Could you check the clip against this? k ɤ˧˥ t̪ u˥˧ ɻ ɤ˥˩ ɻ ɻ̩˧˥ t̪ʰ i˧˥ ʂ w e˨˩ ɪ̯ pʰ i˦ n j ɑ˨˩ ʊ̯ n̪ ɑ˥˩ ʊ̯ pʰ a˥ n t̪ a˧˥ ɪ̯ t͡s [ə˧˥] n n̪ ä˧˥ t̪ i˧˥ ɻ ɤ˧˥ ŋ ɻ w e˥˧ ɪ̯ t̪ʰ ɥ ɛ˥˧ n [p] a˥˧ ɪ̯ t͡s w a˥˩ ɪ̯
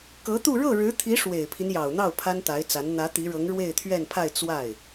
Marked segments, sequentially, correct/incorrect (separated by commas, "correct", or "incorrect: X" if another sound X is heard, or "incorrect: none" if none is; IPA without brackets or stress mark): incorrect: a˧˥, incorrect: pʰ